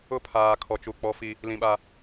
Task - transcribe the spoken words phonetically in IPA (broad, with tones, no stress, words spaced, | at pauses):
ʊ˦pʰaː˨kʰɔ˨t͡ʃu˨ k͡pɔ˦fi˦ | lĩ˨ɓa˨